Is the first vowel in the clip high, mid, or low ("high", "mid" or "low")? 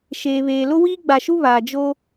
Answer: mid